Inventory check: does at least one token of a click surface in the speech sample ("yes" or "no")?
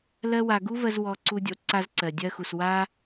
yes